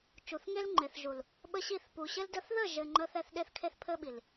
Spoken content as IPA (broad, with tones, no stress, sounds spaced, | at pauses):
t͡ʃ u˨ θ ŋ e˦ l ŋ͡ǃ e˨ θ ʒ u˨ l | ɓ ə˦ ɕ i˦˨ θ p u˨ ɕ ɘ˦ l d ə˦ θ ð ə˦˨ ʒ ɘ˨ ŋ͡ǃ ə˦ θ ɛ˦ θ ɗ e˦ θ kʰ e˦ θ pʰ ɘ˦ ɓ i˨ l